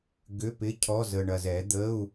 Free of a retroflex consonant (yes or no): no